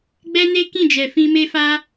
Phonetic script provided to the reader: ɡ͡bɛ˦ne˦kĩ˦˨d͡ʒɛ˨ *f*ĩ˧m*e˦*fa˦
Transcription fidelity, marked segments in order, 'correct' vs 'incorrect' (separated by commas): correct, correct